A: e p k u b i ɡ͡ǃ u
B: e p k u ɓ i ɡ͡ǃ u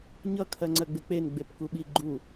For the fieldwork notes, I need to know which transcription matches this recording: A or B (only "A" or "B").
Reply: B